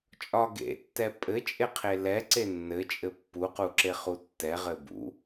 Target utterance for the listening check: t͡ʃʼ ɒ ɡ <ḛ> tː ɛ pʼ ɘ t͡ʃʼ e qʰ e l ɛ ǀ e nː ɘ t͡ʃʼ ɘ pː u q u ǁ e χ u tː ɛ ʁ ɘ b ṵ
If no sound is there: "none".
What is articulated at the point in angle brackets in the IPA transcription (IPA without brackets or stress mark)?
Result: ḛ